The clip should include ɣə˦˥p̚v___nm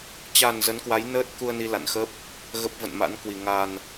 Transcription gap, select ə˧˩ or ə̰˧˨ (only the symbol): ə̰˧˨